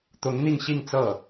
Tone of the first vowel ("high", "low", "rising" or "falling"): rising